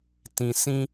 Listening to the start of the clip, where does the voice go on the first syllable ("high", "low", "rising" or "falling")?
low